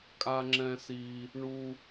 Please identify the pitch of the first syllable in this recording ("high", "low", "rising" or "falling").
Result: high